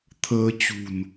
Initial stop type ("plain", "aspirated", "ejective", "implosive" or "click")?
aspirated